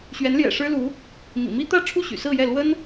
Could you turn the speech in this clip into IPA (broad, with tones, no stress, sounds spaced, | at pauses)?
ɕ ɥ ɛ˧˥ n l j ɛ̰˨˩ ʂ ɻ̩˥ l u˧˥ | m ḭ˨˩ m i˥ t̪ ä˥˧ ʈ͡ʂʰ u˥˩ ɕ y̰˨˩ s ɹ̩˥˧ j ɛ˥˩ l w ə˥ n